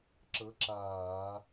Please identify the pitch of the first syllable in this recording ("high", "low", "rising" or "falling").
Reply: rising